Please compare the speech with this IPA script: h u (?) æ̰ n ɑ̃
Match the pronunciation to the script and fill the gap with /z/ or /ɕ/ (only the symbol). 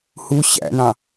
ɕ